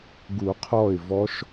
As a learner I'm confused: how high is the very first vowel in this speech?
high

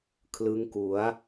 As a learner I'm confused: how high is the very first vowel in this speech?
high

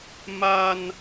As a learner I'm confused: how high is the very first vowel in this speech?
low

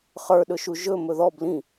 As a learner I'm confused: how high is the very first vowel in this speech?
mid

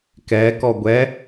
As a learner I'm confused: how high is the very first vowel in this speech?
mid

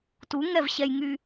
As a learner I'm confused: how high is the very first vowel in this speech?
high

